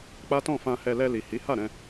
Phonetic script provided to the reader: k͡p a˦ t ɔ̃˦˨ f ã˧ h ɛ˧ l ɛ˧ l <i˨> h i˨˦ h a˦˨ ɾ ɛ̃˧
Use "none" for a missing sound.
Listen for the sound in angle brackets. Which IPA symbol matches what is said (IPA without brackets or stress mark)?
i˨